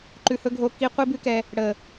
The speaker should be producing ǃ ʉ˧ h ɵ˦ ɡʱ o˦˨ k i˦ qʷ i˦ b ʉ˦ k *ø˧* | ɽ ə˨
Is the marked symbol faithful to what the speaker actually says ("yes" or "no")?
no